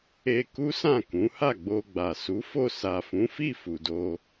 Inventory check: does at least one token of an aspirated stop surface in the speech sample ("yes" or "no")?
no